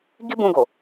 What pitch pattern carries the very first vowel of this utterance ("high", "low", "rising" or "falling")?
high